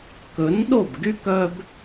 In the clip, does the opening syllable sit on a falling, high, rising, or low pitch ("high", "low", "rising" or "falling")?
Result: rising